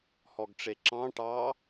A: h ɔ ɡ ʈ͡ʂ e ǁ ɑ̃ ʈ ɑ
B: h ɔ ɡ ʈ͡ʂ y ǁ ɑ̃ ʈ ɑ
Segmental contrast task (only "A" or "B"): A